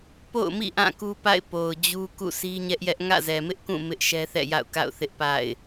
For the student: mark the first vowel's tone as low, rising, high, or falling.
falling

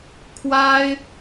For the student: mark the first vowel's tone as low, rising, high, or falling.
high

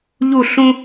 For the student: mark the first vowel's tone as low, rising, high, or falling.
falling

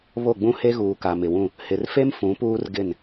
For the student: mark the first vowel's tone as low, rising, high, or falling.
falling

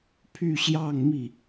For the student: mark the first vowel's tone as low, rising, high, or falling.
falling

